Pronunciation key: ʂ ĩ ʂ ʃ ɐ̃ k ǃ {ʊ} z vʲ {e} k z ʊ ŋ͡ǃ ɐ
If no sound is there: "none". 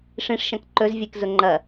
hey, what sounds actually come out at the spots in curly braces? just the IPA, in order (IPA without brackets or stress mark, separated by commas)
ɵ, e